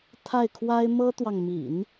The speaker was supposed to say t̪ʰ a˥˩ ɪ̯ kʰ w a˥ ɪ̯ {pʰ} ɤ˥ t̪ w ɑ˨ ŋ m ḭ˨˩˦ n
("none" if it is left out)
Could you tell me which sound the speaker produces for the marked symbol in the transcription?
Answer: m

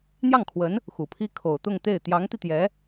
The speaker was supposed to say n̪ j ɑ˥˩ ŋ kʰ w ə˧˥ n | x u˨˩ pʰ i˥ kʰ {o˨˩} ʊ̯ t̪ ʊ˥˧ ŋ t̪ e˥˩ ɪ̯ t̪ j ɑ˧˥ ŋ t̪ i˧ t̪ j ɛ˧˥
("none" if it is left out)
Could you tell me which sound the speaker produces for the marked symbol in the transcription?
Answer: o˨˩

